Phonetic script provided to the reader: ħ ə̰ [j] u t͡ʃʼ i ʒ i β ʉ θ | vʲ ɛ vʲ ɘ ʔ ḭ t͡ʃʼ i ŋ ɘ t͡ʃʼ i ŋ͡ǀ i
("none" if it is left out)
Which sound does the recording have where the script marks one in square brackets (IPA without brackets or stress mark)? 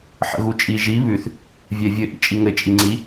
ɣ